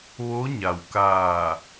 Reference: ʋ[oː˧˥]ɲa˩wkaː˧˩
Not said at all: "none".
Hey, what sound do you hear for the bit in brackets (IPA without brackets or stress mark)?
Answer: o˧˥